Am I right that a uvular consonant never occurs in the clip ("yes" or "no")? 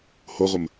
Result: no